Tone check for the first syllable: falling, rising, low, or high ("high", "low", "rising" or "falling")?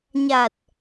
low